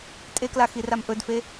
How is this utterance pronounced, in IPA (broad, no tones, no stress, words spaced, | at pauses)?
tʼekla xiramʔɵdfe